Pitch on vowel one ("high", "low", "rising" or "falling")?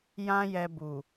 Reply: high